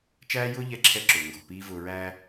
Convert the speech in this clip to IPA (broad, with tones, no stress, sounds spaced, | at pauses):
t͡ʃ æː˦ j ʊː˦ ʎ ɛ˧ ǁʰ ɛ˧ ǁ ʊː˨ ŋ ɡ ɔ̤˦˨ p iː˦ v ʊː˨ ɹ æː˧